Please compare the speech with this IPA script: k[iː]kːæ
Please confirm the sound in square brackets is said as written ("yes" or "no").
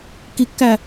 no